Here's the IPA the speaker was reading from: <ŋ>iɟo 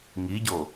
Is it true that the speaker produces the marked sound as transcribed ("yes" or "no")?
yes